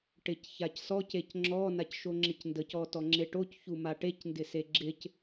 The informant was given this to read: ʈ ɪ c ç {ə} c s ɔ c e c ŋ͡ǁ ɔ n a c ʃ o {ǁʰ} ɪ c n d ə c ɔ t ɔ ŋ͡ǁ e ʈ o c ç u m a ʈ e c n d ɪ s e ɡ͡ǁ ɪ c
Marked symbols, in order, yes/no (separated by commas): no, no